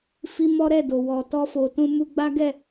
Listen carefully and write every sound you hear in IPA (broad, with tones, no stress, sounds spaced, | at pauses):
f i˦ m ɔ˦ ɾ ɛ˦˨ d o˨ w ɔ˨ t ɔ˧ f o˨ t ũ˧ m u˧ ɡ͡b a˦ ɡ ɛ˦˨